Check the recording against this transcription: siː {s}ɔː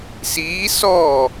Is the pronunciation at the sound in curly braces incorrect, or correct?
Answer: correct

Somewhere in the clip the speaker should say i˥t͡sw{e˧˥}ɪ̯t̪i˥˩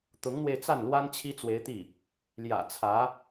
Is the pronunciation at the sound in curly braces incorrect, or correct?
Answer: correct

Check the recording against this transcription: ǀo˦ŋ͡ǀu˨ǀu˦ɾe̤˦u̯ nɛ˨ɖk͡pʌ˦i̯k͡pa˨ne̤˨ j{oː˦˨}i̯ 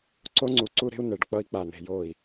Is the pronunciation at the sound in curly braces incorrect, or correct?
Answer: correct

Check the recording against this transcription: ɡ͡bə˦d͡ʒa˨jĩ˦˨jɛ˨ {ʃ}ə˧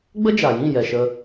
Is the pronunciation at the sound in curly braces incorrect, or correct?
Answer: correct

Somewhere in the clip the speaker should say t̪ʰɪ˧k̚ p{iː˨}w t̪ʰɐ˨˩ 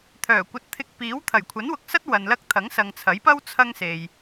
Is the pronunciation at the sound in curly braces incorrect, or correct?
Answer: incorrect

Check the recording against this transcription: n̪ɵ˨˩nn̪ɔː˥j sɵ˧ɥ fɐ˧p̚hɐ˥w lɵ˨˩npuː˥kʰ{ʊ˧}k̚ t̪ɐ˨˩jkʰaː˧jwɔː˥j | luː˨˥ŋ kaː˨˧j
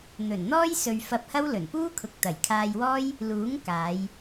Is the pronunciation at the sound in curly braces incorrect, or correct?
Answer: incorrect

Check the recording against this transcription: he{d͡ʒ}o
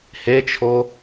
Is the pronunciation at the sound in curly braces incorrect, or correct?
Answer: incorrect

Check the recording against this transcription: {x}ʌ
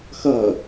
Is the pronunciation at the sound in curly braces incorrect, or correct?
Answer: correct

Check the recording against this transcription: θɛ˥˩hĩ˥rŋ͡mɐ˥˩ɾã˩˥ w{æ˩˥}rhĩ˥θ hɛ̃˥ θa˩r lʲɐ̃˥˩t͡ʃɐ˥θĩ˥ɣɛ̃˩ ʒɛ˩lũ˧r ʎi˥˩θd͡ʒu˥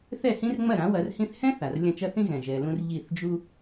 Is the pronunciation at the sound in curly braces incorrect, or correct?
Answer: incorrect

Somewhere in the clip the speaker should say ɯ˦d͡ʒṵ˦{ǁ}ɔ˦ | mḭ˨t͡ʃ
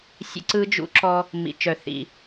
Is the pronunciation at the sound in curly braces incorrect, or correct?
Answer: correct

